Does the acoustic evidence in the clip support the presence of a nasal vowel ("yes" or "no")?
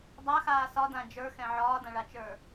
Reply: yes